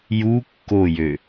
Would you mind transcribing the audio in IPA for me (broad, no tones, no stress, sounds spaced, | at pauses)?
j u kː o j ø